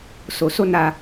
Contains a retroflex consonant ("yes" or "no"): no